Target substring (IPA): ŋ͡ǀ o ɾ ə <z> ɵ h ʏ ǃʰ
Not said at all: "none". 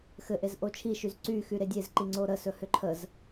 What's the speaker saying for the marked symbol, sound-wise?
s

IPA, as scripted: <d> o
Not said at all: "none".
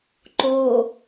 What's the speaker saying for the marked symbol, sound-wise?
ǃ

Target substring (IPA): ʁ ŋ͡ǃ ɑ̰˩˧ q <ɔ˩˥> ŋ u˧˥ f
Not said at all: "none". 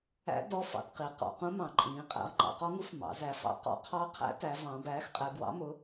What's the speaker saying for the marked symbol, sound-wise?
ɔ˧˥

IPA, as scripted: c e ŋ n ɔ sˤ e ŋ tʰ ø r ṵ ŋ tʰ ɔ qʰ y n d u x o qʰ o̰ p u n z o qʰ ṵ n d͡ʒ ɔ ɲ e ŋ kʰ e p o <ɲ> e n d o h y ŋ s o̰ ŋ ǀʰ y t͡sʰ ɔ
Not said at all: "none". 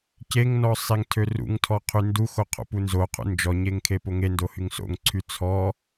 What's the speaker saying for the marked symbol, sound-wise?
ŋ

